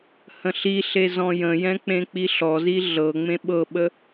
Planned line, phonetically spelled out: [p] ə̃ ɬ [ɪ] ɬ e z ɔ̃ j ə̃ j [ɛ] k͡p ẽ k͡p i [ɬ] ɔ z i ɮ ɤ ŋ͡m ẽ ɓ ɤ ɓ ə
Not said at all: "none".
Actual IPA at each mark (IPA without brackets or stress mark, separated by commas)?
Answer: h, i, ɛ̃, ɬ